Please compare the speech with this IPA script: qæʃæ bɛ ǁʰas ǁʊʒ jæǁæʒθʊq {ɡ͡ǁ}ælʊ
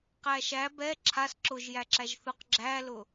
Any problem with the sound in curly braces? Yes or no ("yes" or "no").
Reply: no